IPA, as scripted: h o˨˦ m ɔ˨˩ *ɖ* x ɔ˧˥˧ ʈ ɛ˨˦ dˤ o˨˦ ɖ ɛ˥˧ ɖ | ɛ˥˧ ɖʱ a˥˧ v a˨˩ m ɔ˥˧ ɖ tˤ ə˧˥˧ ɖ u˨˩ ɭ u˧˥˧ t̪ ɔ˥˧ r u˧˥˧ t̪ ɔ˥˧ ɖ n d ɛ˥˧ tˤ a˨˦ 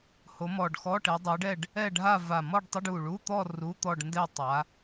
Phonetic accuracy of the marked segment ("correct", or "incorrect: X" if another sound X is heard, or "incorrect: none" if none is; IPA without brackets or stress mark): correct